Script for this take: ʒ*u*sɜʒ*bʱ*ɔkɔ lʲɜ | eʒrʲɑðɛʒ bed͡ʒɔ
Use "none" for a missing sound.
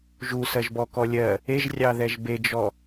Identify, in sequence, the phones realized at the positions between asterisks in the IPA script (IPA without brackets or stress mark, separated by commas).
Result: u, b